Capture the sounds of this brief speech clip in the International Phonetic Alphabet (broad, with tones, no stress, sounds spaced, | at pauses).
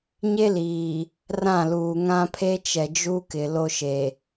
ɲ e˦ l iː˨ | r ã˦˨ l uː˨ ŋ ã˦ pʰ e˦ t͡ʃ ɛ˨ d͡ʒ u˦ k ɪ˨ l o˦ ʃ e˨